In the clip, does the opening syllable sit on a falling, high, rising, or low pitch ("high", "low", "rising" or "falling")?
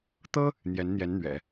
high